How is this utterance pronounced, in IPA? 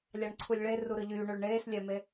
lʲ ɑ ɳ ǀʰ u lʲ ɭ e r u ɾ ɯ ʎ yː ɳ ø ɭ ɳ eː s lʲ æ m e

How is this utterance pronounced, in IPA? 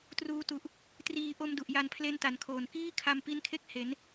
t r uː˧ t u˨˩ ʔ | t r iː˧ ʔ o˧ m d u˨˩ ʔ j a˧ n pʰ l e˦˥ n t a˩˦ n kʰ oː˨˩ n k iː˥˩ kʰ a˧ m p i˦˥ n kʰ e˥˩ k̚ h e˩˦ n

